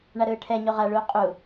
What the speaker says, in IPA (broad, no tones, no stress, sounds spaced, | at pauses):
ɳ a ɾ ɯː ʈʰ ɛ ɲ o ʁ a ɭ uː qʼ u